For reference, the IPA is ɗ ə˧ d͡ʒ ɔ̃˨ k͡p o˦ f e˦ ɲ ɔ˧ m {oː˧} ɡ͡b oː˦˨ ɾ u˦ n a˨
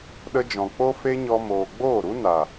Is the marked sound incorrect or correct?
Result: incorrect